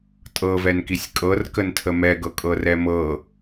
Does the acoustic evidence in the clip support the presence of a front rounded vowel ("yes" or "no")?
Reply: no